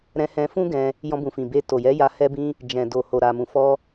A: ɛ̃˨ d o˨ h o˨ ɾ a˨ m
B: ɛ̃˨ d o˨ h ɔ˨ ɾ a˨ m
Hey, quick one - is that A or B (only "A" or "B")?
A